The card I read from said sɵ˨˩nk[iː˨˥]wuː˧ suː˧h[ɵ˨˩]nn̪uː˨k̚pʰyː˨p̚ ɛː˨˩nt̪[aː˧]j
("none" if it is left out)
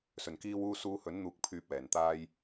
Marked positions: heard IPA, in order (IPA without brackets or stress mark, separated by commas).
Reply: iː˧, ɵ˨˥, aː˧